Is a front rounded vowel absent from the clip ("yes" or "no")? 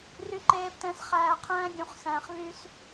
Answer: no